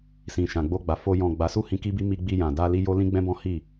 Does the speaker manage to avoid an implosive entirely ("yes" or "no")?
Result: yes